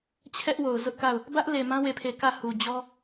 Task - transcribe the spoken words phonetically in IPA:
t͡ɕʰɛ˦ʔwo˨ʊ̯zʊ˦ʔka˦˨ʊ̯ | bä˦ʔ le˨mã˦ we˦˨pʰe˦˨ kä˦˨hu˨ d͡ʑɔ˦

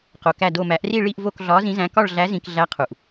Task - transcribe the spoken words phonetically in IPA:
qo˨kæ˦˨do˦˨ mæ˨˩˦ʔri˦˨ ɭi˦˨ʔvo˦˨k ɮɒ˨˥zĩ˨˥zæ̃˨˥ kɒ˦˨ɭɮæ˨˥ zĩ˨kɮæ˨˥ qʰu˨ʔ

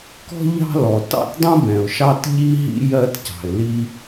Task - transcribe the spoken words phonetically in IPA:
kɔ̤˥ ʎɑ̤˥lɔ˨tɑ̰˥t dˤũ˥bɛ̃˨ʊ̯ʃɑ˥t ʎi˥ɦḭ˥ jɜ˥tcɑ̤˨ɪ̯li˥

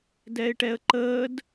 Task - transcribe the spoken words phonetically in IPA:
dɛɪ̯ʈɛə̯ǃəːd

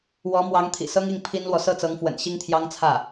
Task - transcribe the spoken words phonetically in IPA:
wɔ˧˥mwɑ˧˥ŋ t̪ʰḭ˨˩sɤ˥ŋi˥˩ŋ pʰi˥nlwɔ˨ sɤ˥˩t͡sɤ˧˥ŋfwə̰˨˩n ɕi˥ŋt̪ʰjɑ˥ŋt͡sʰä˥˩

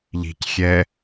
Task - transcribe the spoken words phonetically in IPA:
ʎi̤cxʲɛ

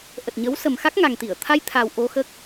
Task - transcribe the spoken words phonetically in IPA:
ʔə˨˩t̚ɲə˨˦w sə˨˩mxa˦˥k̚ ŋa˨˩ŋt̪i˧˩ə̯t̪ʰa˧j t̪ʰa˨˩w ʔo˧xəː˦˥k̚

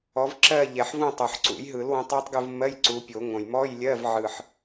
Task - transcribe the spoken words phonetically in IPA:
ɔ˨˦v ǁɜ˦˨ʎɛ˨˩ħvũ˦˨ tˤo˨˩ħǀṵ˨˩˦jɦɯ˨˩˦lwũ˨˦tˤ ɜ˦˥tˤɡɯ˦˨vmɜ˧˥˧j ǀu˨˦pʲo˨˩˦ŋõ˨˩j mɔ˧˥˧jlʲɜ˧˥˧v ʕɯ˨˩ħ

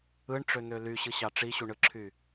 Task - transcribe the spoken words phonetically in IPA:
ɯɳʈ͡ʂøn̪ø lyɕɯɕɑ ʈ͡ʂiɕuɳɯǁʰy

